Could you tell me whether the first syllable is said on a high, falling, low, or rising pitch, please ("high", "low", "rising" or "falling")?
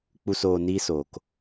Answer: low